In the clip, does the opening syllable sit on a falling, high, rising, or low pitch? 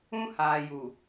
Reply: high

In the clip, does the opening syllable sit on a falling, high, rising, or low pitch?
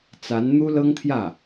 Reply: rising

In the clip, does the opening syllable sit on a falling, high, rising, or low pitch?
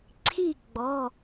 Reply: falling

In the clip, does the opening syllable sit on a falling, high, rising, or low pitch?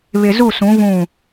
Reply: low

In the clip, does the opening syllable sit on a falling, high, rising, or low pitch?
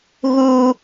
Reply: high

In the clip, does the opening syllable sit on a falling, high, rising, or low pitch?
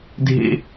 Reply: high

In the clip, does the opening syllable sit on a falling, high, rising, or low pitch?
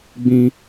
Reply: high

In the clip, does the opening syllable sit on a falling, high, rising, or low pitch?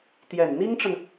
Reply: low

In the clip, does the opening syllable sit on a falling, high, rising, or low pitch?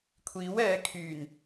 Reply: rising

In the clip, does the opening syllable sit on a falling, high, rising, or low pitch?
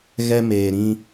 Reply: high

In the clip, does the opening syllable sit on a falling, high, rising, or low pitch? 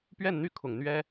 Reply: falling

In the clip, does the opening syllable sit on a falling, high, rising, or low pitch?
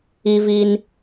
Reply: high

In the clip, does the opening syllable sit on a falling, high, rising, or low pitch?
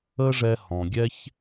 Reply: high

